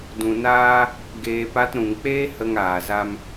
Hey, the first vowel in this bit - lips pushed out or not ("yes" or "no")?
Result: yes